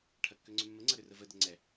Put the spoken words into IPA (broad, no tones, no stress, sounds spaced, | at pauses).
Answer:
ʈʰ ɐ kː ø ŋ͡ǀ ʏ mː ə ŋ͡ǀ ɐ ɾ ʏ r ə v ə d ə ŋ͡ǀ ɛ